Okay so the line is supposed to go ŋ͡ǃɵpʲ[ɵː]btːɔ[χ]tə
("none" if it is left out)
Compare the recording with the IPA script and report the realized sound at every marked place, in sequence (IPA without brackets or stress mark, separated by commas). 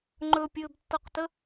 ɵː, q